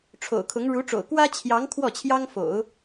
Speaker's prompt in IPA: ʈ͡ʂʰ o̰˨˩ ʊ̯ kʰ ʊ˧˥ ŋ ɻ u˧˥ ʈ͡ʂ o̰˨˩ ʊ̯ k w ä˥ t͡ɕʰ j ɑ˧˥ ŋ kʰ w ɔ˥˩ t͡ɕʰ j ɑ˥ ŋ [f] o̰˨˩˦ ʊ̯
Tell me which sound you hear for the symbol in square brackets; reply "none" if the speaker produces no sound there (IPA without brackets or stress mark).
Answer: f